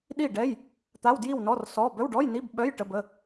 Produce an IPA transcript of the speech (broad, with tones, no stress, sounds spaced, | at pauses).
ɗ i˥˨ ɖ ɛ˧˥˧ j | t̪ a˧˥˧ w d j i˥˨ w n ɔ˧˥˧ r s ɔ˧˥˧ b œ˧˥˧ w ɖ ɔ˧˥˧ j n i˧˥˧ b ɓ œ˧˥˧ j ʈ ə˧˥˧ b ə˧˥˧